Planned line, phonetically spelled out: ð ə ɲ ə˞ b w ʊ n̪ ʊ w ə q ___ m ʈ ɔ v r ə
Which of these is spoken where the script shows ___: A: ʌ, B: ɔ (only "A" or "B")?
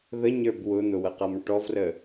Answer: A